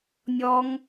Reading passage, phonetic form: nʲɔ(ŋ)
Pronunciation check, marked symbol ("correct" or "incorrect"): correct